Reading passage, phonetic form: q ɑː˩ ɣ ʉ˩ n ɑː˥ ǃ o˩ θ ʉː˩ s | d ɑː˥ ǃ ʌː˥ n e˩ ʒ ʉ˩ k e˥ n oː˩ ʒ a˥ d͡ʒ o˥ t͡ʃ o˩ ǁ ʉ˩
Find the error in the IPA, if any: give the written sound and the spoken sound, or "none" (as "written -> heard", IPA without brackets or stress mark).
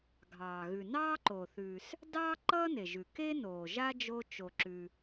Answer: q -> ɡʱ